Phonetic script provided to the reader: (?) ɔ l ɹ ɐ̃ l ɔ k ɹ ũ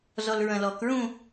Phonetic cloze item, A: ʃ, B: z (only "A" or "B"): B